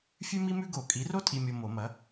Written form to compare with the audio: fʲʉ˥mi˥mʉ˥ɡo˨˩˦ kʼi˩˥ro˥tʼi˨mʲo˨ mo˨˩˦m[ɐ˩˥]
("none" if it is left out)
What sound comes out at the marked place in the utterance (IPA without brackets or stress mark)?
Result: ɐ˩˥